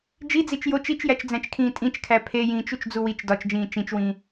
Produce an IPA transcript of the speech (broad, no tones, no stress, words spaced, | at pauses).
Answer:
d͡ʒid͡zit͡ʃ jot͡ʃ it͡ʃjæt͡ʃd͡zæ̃t͡ʃkʰĩː tʼĩt͡ʃkʰæ pʰejĩːt͡ʃ ut͡ʃd͡zuwit͡ʃ dɒt͡ʃd͡ʒĩː t͡ʃĩt͡ʃwĩː